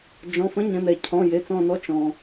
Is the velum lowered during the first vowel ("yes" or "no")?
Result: yes